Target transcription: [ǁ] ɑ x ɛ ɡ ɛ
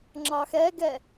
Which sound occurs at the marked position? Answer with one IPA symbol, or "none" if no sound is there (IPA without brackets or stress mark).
ŋ͡ǁ